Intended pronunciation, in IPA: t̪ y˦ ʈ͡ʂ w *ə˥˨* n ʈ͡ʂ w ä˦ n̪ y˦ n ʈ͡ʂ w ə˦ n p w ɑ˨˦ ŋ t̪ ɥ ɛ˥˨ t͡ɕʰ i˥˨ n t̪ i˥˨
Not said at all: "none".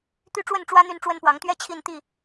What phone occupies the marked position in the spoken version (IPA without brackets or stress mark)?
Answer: ə˥˨